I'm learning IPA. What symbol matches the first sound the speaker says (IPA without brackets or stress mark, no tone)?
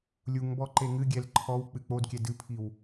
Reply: lʲ